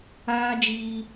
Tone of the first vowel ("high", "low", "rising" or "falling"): high